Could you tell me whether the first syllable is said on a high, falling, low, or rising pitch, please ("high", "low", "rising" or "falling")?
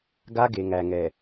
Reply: high